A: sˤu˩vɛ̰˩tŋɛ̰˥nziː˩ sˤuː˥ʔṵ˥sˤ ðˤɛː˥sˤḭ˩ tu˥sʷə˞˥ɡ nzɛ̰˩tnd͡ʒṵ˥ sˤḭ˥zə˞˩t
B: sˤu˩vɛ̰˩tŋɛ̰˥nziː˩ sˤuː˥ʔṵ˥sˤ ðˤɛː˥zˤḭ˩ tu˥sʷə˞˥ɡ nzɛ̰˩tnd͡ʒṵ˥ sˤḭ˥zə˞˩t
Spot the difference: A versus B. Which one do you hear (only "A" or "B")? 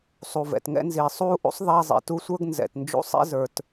B